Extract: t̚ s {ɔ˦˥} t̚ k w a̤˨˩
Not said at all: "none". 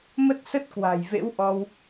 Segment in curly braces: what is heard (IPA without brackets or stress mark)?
ə˦˥